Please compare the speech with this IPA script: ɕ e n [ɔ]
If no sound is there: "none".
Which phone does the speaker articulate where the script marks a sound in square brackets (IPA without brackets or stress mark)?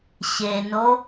o